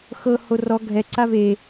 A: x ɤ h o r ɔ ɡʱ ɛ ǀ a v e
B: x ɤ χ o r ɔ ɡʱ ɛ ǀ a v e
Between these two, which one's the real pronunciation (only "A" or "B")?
A